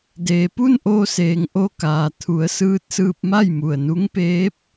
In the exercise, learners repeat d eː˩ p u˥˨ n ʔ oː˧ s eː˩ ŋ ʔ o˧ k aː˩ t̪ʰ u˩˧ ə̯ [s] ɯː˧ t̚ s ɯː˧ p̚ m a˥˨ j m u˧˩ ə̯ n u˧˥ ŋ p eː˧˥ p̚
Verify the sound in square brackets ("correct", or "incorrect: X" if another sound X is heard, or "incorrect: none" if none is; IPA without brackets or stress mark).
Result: correct